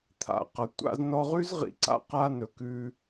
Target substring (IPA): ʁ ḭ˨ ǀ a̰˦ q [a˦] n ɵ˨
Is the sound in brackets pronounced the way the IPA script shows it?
yes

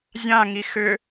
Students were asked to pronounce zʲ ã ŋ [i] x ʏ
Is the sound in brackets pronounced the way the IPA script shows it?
yes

